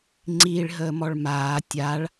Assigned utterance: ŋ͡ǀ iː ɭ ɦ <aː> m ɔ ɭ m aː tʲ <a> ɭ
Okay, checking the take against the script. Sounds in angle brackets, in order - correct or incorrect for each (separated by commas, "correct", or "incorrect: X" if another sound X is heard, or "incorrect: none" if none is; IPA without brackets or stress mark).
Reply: incorrect: əː, correct